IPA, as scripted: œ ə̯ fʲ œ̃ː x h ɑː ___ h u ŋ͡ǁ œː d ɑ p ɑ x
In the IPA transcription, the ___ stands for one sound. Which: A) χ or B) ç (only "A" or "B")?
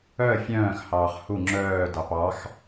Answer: A